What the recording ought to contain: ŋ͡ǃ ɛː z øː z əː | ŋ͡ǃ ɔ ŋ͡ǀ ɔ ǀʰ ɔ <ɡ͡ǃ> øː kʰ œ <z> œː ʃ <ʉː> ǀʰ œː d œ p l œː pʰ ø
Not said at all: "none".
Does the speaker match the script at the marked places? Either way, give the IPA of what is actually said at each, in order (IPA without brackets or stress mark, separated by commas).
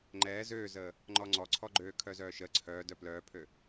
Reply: ɡ͡ǃ, z, əː